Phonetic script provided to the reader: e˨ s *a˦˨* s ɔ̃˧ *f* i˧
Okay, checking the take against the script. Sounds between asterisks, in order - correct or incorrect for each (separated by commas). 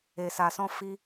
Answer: incorrect, correct